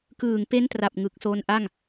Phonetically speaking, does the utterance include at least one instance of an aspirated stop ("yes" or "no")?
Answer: no